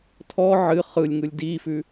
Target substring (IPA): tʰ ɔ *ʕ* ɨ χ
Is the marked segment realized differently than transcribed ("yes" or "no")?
no